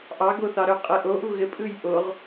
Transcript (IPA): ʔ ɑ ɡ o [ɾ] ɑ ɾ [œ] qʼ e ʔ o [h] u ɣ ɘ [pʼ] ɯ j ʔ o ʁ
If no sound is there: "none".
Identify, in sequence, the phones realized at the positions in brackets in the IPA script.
θ, œ, ʔ, pʼ

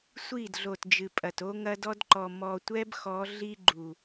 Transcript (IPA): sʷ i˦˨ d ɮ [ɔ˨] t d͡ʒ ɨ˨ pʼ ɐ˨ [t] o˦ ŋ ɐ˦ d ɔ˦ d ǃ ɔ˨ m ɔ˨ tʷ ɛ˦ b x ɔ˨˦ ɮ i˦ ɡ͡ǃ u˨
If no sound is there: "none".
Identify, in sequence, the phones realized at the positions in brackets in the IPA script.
o˨, t

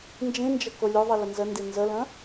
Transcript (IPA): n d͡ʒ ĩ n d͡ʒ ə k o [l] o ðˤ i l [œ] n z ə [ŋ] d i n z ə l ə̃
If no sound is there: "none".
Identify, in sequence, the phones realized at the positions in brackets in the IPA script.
lʲ, ə, n

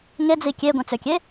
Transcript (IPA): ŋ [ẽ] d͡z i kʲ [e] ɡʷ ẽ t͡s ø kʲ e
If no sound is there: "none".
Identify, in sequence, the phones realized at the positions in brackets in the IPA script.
e, e

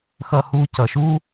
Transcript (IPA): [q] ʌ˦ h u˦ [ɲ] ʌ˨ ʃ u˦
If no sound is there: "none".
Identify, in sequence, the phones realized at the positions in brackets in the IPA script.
x, c

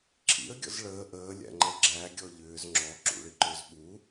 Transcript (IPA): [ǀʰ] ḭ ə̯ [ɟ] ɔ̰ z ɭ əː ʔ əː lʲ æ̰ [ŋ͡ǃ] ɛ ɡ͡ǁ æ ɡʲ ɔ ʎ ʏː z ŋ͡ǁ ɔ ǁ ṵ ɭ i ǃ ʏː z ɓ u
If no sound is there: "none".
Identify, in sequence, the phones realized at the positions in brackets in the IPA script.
ǁʰ, ɡʲ, ŋ͡ǃ

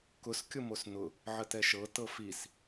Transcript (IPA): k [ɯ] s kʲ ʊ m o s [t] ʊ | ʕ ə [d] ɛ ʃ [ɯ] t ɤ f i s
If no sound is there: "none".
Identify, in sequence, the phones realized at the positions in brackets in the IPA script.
ʊ, n̪, t, ɤ

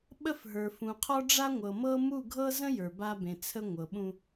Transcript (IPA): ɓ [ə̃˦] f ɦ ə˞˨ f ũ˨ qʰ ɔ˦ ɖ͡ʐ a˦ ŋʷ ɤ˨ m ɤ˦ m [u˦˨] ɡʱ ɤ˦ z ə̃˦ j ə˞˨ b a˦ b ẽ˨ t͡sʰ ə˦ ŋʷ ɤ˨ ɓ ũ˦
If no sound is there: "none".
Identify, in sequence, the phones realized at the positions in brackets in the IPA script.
ə˦, u˦˨

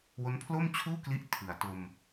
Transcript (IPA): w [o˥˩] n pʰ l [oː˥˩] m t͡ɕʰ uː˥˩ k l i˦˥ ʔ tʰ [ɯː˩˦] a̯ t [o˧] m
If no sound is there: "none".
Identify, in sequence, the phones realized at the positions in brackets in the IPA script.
o˦˥, oː˥˩, ɯ˩˦, o˧

